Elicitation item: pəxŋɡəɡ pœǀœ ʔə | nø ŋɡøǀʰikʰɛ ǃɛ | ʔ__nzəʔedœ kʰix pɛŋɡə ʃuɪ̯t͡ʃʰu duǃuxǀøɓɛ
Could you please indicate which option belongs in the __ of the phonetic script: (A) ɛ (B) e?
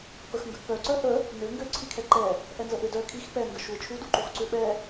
A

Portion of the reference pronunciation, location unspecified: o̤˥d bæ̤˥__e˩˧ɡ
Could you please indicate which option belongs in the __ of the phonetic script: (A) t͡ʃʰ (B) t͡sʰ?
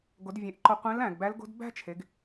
A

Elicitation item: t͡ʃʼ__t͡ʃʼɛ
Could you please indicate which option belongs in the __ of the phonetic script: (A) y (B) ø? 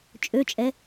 B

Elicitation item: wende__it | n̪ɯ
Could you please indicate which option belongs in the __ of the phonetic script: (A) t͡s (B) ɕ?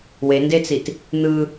A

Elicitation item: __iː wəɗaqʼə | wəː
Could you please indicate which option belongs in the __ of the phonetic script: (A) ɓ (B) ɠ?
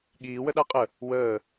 B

